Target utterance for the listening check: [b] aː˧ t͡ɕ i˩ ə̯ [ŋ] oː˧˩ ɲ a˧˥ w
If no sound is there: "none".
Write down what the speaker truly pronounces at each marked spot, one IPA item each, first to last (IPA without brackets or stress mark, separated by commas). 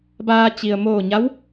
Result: b, m